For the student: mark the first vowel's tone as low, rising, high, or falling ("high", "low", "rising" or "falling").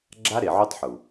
high